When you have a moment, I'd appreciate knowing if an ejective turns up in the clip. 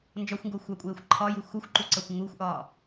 yes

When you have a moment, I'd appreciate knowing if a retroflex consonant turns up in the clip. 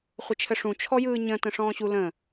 yes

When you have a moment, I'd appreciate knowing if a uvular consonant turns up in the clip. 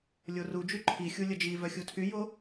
no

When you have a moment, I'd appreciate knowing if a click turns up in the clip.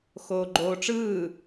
yes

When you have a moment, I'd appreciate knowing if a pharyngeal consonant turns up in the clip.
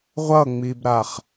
no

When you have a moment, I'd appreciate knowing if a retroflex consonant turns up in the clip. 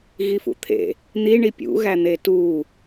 yes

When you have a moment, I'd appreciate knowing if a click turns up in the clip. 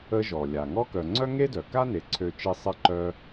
yes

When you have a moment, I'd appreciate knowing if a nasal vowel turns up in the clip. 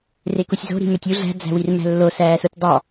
no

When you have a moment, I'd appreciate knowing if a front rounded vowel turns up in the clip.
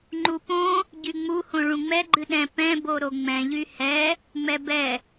yes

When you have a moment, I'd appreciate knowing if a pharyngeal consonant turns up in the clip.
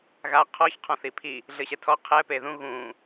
no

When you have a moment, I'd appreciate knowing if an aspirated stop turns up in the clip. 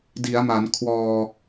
yes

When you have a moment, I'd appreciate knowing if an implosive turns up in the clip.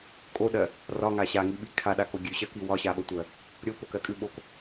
yes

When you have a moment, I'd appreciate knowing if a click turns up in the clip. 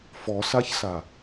no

